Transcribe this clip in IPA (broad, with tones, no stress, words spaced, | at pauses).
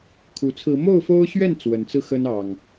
kʰu˨˩t͡sʰɹ̩˨˦ mo˥˨ʊ̯fo˦ʊ̯ɕɥɛ˥˨n t͡swə˨˩nt͡sɹ̩˥˨xə˦n ɑ˨˩ŋ